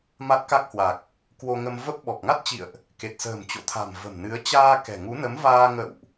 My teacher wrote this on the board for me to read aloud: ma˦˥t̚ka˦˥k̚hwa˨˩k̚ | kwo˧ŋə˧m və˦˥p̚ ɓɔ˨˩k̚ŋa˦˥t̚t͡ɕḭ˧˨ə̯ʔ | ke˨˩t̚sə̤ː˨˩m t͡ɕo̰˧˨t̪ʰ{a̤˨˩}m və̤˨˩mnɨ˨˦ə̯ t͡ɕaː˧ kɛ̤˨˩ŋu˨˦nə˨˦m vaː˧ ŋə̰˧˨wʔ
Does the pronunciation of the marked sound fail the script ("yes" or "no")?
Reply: no